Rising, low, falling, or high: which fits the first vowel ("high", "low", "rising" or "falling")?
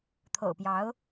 low